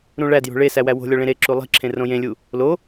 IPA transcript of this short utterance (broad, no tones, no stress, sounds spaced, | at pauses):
ɾ ũ ɭ æ d j o̤ ɭ e s æ w æ w o̤ lʲ ɒ ɭ ẽ ɾ e ǁ u lˠ i̤ ǁʰ ẽ r õ j ẽ lʲ u | l o